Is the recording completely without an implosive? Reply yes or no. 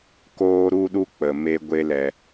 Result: no